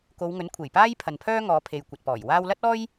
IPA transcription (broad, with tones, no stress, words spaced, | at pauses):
ko˨˧wŋɵ˨˥nkʷʰe˨˩jpaː˥j pʰɐ˨npʰœː˥ŋɔː˨˧pʰe˨j kʷɐ˨t̚pɔː˨˩jwaː˥w lɐ˥t̚ɔː˥j